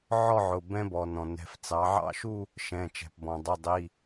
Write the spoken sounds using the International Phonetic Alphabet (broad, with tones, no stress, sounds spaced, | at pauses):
ʕ ɔ˥˧ ʕ ʊ˩˧˩ b ɛ̃˦˥ b ɔ˩ n ɔ̃˩ n ɛ̤˩˧˩ f t͡s ɑ˩˧ ʕ ɑ̰˥˩ ʃ u˥˧ | ʃ ɛ̃˩˧˩ t͡ʃ ɛ̤˩ p b ɔ̃˩ dˤ ʊ˩˧˩ dˤ i˩˧˩